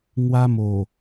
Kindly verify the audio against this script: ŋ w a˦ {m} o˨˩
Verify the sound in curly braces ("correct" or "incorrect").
correct